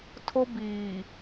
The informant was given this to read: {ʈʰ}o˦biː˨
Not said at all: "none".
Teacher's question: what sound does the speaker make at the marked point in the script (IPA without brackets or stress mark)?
tʰ